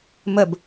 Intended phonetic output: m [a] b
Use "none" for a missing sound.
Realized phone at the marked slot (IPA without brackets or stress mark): ə